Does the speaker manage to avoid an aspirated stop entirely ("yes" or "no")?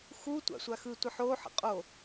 yes